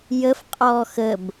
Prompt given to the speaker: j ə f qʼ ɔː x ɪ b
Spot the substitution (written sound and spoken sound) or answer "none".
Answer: ɪ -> ə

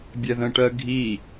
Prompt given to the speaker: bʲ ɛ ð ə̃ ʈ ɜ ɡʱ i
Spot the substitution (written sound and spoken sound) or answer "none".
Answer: none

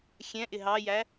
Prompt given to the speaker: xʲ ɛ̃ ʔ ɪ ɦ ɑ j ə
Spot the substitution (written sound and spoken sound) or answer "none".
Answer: ə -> æ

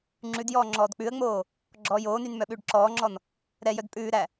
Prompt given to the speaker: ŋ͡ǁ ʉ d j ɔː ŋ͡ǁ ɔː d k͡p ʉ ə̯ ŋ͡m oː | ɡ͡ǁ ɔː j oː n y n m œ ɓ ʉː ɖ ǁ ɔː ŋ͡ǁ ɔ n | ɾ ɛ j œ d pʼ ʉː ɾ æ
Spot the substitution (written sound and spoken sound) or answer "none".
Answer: none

